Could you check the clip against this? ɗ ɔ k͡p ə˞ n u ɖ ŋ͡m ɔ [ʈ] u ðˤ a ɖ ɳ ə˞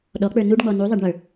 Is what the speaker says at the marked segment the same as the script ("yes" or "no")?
no